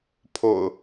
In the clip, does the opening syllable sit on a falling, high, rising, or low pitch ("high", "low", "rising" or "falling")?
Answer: low